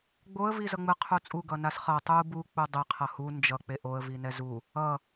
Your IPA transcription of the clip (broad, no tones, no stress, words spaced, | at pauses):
ɡ͡boə̯ vizʌŋ͡mɯ qʰut͡sʼu ɡʌnasχʌ tˤu bu k͡pudˤe qʰʌhu nd͡ʒʌ k͡peʔoə̯ vinɛzu | ʌ